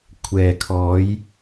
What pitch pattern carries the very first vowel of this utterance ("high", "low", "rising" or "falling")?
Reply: low